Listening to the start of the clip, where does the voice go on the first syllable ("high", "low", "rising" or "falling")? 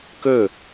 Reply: falling